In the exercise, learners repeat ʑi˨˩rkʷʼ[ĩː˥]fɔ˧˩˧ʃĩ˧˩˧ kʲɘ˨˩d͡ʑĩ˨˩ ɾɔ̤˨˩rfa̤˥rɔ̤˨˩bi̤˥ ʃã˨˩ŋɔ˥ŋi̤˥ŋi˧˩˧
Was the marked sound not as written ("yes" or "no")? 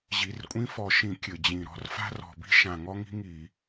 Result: yes